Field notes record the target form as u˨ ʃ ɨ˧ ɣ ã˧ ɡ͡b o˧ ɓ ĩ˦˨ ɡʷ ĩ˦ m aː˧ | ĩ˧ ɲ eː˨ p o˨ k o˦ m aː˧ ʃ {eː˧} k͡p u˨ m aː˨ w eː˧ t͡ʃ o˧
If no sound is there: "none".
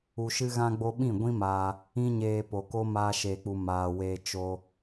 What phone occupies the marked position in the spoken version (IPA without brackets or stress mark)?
eː˨